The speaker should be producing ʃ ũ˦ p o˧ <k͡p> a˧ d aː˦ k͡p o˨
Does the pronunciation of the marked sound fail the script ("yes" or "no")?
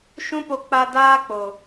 no